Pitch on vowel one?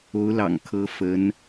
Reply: rising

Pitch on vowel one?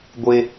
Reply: high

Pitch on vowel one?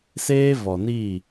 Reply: high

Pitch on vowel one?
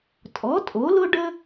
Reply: rising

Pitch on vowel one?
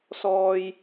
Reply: low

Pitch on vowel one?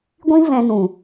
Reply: high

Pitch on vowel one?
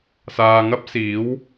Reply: low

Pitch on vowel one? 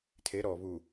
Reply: rising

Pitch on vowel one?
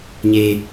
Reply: low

